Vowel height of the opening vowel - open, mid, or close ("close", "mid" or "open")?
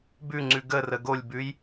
close